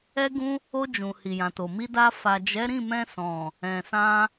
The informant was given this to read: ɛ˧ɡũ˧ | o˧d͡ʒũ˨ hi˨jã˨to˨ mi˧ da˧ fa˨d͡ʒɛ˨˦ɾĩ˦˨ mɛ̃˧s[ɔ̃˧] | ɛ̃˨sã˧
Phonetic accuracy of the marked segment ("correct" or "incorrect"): incorrect